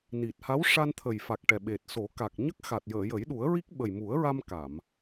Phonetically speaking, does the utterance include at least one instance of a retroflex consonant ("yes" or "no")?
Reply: yes